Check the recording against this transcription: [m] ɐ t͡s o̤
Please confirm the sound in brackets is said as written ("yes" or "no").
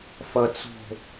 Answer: no